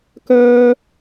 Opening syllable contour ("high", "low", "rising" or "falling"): high